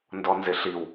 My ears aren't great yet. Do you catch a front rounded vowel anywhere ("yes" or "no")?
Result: no